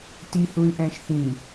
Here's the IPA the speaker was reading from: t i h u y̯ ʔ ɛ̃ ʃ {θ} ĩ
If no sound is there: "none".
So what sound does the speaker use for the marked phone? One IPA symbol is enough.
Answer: θ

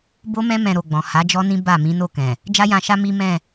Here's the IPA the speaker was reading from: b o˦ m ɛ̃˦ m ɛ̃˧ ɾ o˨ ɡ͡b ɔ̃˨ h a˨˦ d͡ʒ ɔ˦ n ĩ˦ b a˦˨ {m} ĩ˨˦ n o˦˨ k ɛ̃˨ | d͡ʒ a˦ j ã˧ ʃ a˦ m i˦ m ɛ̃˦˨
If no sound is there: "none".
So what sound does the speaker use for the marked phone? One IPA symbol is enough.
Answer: m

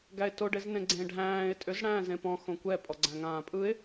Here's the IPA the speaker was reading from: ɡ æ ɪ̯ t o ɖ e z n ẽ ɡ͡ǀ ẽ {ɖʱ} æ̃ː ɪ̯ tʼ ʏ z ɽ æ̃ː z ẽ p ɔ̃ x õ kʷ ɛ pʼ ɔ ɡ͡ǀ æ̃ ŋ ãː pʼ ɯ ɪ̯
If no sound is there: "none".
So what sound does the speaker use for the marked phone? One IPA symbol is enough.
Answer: ɖʱ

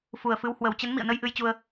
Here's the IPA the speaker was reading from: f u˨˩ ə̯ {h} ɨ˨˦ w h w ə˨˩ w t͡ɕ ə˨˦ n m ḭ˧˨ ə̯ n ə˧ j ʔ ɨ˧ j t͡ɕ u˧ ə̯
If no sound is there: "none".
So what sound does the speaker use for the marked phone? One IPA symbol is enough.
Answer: f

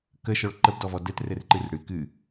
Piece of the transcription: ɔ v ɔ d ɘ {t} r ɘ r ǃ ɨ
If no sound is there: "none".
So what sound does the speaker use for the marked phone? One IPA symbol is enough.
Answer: t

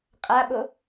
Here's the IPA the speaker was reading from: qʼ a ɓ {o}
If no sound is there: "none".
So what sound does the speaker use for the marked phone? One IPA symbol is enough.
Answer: o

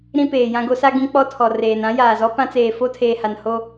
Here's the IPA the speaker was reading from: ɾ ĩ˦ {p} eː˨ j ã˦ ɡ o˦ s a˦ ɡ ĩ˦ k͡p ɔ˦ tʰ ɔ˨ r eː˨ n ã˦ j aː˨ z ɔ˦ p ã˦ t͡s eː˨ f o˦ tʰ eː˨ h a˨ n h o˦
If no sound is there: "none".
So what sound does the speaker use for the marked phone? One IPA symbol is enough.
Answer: p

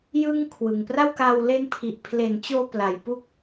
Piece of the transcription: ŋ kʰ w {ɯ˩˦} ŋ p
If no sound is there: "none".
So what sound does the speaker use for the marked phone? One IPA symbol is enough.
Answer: ɯ˨˩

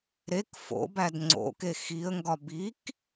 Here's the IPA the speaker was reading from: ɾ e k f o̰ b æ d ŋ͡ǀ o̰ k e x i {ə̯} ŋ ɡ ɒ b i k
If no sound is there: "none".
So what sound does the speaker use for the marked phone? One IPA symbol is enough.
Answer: ə̯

